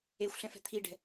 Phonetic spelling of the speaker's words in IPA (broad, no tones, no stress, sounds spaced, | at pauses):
e xʷ ɬ ɛ̃ f ɛ̤ t̪ʰ i ɖ ɛ̤